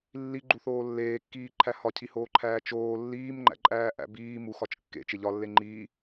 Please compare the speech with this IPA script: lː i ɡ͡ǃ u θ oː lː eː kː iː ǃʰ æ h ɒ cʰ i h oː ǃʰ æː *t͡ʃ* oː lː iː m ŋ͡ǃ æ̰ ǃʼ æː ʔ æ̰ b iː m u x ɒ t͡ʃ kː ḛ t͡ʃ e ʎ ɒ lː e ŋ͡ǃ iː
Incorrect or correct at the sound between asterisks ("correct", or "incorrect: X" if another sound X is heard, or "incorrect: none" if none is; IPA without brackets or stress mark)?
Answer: correct